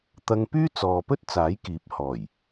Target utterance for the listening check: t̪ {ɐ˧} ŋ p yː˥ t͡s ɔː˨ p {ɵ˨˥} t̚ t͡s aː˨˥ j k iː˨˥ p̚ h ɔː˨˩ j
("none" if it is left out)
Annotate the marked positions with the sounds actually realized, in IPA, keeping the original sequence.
ɐ˧, ɵ˥

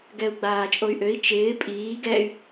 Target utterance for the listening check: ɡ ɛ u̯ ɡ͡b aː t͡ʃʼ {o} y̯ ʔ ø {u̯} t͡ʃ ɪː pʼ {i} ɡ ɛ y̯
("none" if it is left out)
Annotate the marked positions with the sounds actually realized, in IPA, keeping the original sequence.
o, i̯, iː

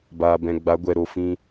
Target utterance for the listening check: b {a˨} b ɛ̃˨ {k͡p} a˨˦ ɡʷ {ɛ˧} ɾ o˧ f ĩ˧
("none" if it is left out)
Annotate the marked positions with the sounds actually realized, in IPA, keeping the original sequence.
aː˨, ɡ͡b, ɛ˧

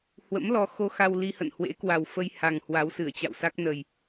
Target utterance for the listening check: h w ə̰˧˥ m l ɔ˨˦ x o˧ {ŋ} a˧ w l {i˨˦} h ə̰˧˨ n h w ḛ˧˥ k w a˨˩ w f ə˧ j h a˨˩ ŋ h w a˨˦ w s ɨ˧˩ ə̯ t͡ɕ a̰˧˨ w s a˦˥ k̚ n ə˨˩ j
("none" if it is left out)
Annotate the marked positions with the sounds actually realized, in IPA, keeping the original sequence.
x, i˧

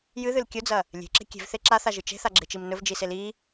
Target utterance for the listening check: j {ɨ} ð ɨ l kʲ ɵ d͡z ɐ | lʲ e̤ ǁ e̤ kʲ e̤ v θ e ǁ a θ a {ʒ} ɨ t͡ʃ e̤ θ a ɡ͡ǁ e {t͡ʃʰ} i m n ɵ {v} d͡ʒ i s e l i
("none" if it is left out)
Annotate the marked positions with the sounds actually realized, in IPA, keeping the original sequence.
ɨ, ʒ, t͡ʃ, v

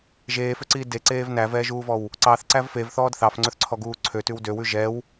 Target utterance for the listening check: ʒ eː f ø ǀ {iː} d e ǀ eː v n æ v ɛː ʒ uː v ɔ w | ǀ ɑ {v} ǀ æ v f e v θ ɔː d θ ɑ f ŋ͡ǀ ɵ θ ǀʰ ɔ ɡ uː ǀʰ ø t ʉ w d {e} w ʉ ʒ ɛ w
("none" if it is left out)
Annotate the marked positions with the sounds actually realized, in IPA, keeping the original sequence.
iː, θ, ø

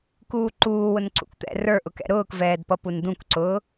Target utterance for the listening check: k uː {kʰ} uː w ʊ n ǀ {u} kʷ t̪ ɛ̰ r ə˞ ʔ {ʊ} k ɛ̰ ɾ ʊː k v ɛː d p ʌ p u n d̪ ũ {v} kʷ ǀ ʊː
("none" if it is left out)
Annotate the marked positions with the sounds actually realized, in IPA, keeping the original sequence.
ǃ, ṵ, ʊ, none

